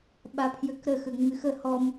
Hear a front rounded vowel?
yes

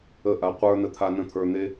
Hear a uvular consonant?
yes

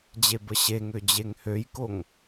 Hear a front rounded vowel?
yes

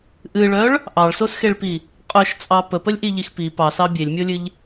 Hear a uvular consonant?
yes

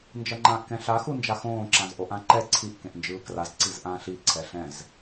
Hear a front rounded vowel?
no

